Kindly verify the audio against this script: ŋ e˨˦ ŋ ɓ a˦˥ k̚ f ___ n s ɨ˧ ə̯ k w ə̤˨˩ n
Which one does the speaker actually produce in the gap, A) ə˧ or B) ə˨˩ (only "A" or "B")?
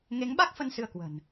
A